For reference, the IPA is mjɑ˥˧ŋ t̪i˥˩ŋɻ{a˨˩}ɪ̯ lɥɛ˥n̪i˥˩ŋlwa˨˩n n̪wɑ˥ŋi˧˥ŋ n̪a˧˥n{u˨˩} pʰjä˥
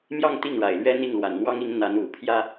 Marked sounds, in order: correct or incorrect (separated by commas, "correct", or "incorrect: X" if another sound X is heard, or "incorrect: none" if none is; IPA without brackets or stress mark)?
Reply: correct, correct